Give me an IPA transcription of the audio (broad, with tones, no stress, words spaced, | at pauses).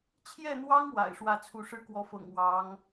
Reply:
t͡ɕʰjɛ˥˩n̪wɑ˥ŋ wa̰˨˩ɪ̯ʂwä˥˧t͡sʰu˥˧ ʂɻ̩˥˩kwɔ˧˥fɤ̰˨˩ŋ wɑ˧˥ŋ